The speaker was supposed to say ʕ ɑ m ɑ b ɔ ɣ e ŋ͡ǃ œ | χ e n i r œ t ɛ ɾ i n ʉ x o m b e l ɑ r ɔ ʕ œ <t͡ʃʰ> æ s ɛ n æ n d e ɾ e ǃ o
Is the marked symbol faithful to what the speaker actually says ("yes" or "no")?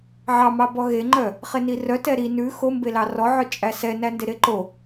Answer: no